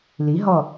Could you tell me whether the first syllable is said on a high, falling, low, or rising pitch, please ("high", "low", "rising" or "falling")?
rising